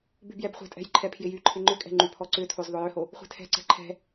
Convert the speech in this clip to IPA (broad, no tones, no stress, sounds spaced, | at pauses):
b y b j ɛ b χʷ ɛ̤ tʼ ɛ̤ j ǃʰ ɛ pʰ j ɪ j y ǃʰ ɪ ŋ͡ǃ ʏ kʼ ɛ̤ ŋ͡ǃ y pʰ ɔ ǀ ʏ tʰ o z ðˤ ʊ j ʏ h o | χʷ ɛ̤ tʰ ɛ̤ ǀ ɛ̤ ǃʰ ɛ̤